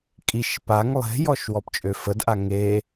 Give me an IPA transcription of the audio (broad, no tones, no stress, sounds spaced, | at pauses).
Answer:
kʼ i ʃ p a ŋ lˠ e̤ j ɔ ʃ w ɔ p t͡ʃʼ ø f ə d ʔ a ŋ e